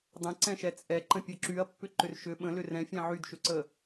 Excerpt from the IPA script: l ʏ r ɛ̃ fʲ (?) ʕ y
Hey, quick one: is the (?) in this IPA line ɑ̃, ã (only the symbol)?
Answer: ã